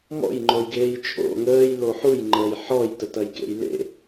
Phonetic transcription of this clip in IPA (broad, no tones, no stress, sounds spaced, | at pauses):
m ɔ̰ j ŋ͡ǃ o j ɡ eː j t͡ʃʼ o̰ ŋ əː j l o ħ u j ŋ͡ǃ əː j ħ ɔː j t ə t ɐ j k ḛ j l ḛ